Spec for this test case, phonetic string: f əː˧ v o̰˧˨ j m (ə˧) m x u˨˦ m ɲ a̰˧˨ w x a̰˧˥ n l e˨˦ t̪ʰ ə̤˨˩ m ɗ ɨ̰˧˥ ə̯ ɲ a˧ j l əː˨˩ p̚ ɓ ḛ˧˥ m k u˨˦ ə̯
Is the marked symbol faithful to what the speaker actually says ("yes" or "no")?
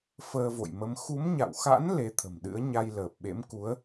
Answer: no